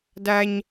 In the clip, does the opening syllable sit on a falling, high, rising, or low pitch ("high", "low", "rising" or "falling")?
high